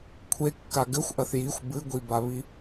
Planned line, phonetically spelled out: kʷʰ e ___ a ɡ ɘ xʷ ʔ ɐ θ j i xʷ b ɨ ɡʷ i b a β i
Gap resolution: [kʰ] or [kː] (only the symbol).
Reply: kː